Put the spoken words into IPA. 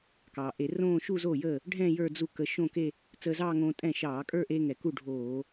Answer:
k ɑː˩ ʔ e˧˩˧ r õː˥˧ ʃ u˥˧ z oː˥˩ j əː˥˩ | ɖʱ ɛ̃ː˥˧ j ə˞˥˧ d͡z u˥˩ k ə˧ ʃ õ˥˧ k e˥˧ | t͡s əː˧ z ɑː˥˧ ŋ õː˧ tʼ ɛ̃ː˥˩ ʃ ɑː˧˩˧ kʼ ə˞˥˧ ʔ e˧ ŋ ɛ˩ k u˥˩ ɖʱ oː˧˩˧

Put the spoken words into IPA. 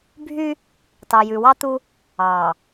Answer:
bʱ y˦ | t ɑ˨ j ʉ˨ w ɑ˦ t̪ u˦ | ɑ˨

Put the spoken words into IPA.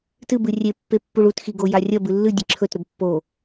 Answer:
t ɨ b ɨ rʲ e pː e pː u ɭ u t x i ɡ o j a rʲ ɐ b ɨ lː ɨ dʲ ɨ ǁʰ ɵ t ɾ ɵ b pː o

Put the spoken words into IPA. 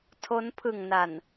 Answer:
tʰ o˦˥ n pʰ ɯ˨˩ ŋ n a˨˩ n

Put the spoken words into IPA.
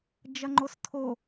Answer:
d͡ʒ ɐ ŋ͡ǃ o s tʰ o

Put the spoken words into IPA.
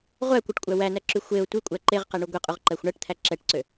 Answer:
ʁʷ æ kʷ ɛ ʈ kʷʼ æ w æ n æ ǁ y xʷ e ʊ̯ tʷ i kʷʼ æ ǃ e ʁ q ɛ ɳ u ɡʷ i qʼ u ʁ ǃ æ xʷ ɳ æ ʈ t̪ʰ æ ǁ ɛ ʈ ǀ ø

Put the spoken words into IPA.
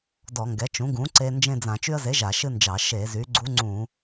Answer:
d ɔ˧˩˧ ŋ ɡ ɛ˩˥ t͡ʃ ũ˩˥ ɡ ũ˩˥ ǀ e˧ n d͡ʒ ẽ˥˧ d͡z ã˧˩˧ t͡ʃ y˧ ə̯ z e˩˥ ʒ a˧˩˧ ʃ ɨ˥˧ n d͡ʒ ɑ˧˩˧ ʃ e˧˩˧ z y˩˥ ɡ͡ǀ u˧˥ ŋ͡ǀ ũ˧˩˧

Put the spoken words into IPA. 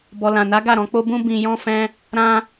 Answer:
b ɔ˨ l ã˨ n a˨˦ ɡ a˦˨ ɾ ɔ̃˧ k͡p o˦ b ũ˦ b ĩ˧ j ɔ̃˦ f ɛ̃˦ | ɾ ã˧

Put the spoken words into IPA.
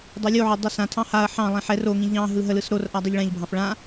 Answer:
dˤ o lʲ o ʕ o dˤ ɯ s ã tʰ ɑ̃ h a ɐ̯ ħ ɑ̃ lˠ ĩ ħ ɛ r o ŋ ĩ ʎ ɑ̃ ɦ ɯ ɦ ə l ɯ s ɾ o r ʔ a dˤ i ʎ ɭ ɛ̃ ʎ bʱ ɑ̃ f ɭ ã

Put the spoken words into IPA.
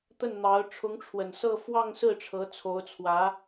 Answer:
t̪ ə˥˩ n n̪ ɑ˧˥ ʊ̯ ʈ͡ʂʰ ʊ˧˥ ŋ ʈ͡ʂʰ w ə˨˩ n s ɤ˥˧ f w ɑ˥˧ ŋ s ɹ̩˥˩ ʈ͡ʂʰ ɤ˧˥ t͡sʰ o˧˥ ʊ̯ t͡sʰ w ä˧˥

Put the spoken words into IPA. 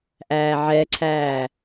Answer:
ʔ æː ʕ ɛ ǀʰ æː

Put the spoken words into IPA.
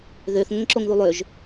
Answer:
ð ø θ ŋ ə ŋ ǁ o ŋ ð u lˠ ø ʒ

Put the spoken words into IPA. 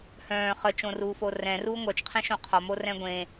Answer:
h œ̃ː χ ə t͡ʃ õ r uː f o r ɛ̃ r uː ŋʷ œ t͡ʃ qʰ ɛ̃ ʃ õ qʰ ɒ m o r ɛ̃ ɡʷ ẽ

